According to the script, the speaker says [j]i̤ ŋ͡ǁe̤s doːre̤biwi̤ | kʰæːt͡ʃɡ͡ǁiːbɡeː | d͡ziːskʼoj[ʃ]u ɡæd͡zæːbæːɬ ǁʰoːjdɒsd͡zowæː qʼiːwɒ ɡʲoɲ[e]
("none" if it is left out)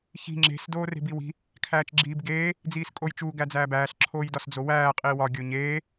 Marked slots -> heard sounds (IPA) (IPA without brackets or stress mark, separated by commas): ç, t͡ʃ, eː